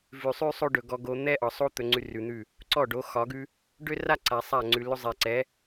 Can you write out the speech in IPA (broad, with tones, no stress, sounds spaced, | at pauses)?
v ʉ˨ sˤ ʉ˦ sˤ o˦ ɖ ɵ˨ ɡ ɔ˧ ɡ o˧ n̪ ɛ˦ ʔ ɒ˨ sˤ o˦ t̪ ɵ˧ ŋ͡ǀ ʉ˧ r ʉ˨ n̪ ʉ˦˨ | ǀ ɔ˦˨ ɖ o˨˦ x ɒ˨˦ ɡ ʉ˦ | ɖ ø˦ r a˦ ǀ a˨ sˤ a˦˨ ŋ͡ǀ ʉ˨ l ɵ˧ zˤ ɛ˨ ǀ ɛ˨˦